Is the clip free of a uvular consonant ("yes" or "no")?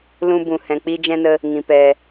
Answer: yes